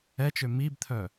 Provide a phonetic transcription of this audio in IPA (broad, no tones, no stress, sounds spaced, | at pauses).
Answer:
ɛ t͡ʃ ø m i b t̪ʰ œ